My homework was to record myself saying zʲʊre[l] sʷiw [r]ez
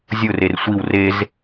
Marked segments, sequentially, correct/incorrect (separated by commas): incorrect, correct